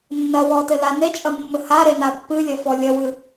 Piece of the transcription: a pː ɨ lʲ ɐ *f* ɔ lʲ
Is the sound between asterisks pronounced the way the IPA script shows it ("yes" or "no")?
yes